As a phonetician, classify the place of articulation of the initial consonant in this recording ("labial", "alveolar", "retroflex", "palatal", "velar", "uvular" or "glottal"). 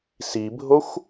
alveolar